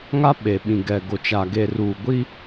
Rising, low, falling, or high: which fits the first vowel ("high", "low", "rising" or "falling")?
high